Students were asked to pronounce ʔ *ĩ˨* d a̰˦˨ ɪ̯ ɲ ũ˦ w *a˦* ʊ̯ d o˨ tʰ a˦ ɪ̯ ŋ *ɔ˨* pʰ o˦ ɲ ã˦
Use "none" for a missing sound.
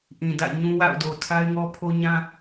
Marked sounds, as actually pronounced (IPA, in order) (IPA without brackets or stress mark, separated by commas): ĩ˨, a̰˦˨, ɔ˦